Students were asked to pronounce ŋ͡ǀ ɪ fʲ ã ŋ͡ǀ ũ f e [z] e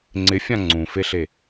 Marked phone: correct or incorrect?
incorrect